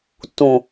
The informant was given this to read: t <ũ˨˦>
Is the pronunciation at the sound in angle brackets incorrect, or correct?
incorrect